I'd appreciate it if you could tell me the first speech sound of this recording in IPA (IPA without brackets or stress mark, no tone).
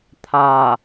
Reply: t̪ʰ